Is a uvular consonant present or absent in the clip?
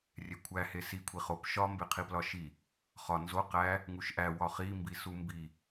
present